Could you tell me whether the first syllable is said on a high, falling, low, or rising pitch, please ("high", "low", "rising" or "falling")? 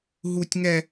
high